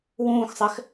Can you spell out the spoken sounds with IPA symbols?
wũːxsˤɛx

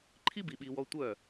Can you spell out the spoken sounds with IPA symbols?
ǃʰi˦bi˨ɓi˨wɔ˧ tʷœ˦˨

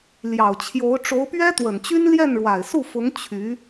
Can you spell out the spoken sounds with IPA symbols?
ljɑ˨˩ʊ̯t͡ɕʰjo˧˥ʊ̯ ʈ͡ʂo˧˥ʊ̯pɥɛ˥t̪wə˨˩nt͡ɕy˥n ljɛ˥˩nɻwa˨˩ɪ̯su˥˩fʊ˧˥ŋ t͡ɕʰy˧˥

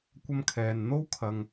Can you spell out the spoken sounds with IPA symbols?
kʷɐ˥mkʰɛː˧n n̪o˥wkʰɐ˧ŋ

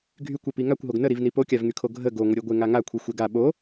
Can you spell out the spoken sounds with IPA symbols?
ɡʱykʷepi ŋakʷɦoɡ nəɾivni pokʲavŋykʰo ɡʱə ɡoŋʷəɾʲeɡʷe ŋaŋakʷʰi xʷeɡa ɓo

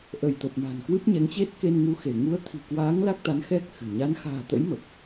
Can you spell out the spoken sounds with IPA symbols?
ʔə˧˩jt̪ə˨˩p̚ ma̤˨˩nkwɨ˦˥p̚ɲɛ˨˦ŋt͡ɕe˦˥t̚ ke˧nŋu˧xe˧˩ ŋu˨˦ə̯t̪ʰi̤˨˩kwaː˨˦ŋ la˦˥k̚t̪a˨˦n xɛ˦˥k̚ xɨ̤˨˩ ɲa˨˦nxa̤ː˨˩t̪ə̰˧˥j mə˨˩p̚

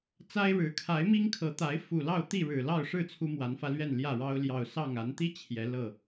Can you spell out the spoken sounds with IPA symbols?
t͡sa˦ɪ̯ ɻɻ̩˨˦kʰa˨˦ɪ̯mi˦ŋkʰɤ˨˦ t̪a˨˦ɪ̯ fu˨˩lɑ˥˨ʊ̯ t̪i˥˨ɻɻ̩˨˩lɑ˥˨ʊ̯ʂɻ̩˥˨ t͡sʰu˦mwa˨˦nfä˧lɥɛ˥˨n ljä˥˨ɻɑ˦ʊ̯ ljɑ˨˩ʊ̯sɑ˥˨ŋa˨˦n t̪i˦ t͡ɕʰjɛ˨˦ lɤ˥˨

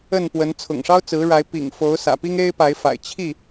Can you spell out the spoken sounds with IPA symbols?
ə˥˨npwə˨˦n t͡sʰʊ̰˨˩ŋʂɑ˦ʊ̯t͡sɹ̩˨˦ ɻa˨˦ɪ̯pḭ˨˩ŋfo˨˦ʊ̯ sä̰˨˩pi˦ŋe˦ɪ̯ pa˨˦ɪ̯fa̰˨˩ɪ̯ t͡ɕʰi˥˨

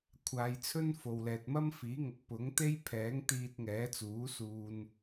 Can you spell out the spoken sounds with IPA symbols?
kʷʰaː˨˧jt͡sʰɵ˥n fo˨wlɛː˨t̚mɐ˥m fiː˨˥ŋʊ˨˥k̚ pʊ˨˥ŋ t̪e˥jpʰɛː˨˥ŋ t̪iː˧t̚ŋɛː˨˥t͡suː˨˥ suː˨n

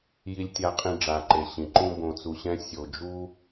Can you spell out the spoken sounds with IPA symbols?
ji˨lʲtʲa˨qʼĩ˨ ɖ͡ʐa˩ǃe˩ ɕĩ˩ǃũ˥ bõ˨t͡su˨ɕɛ̃˦ sʲo˨d͡ʒu˥

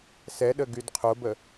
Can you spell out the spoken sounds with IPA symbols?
sɛɗə ɡydqʰobə

